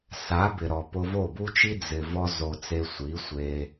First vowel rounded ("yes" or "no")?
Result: no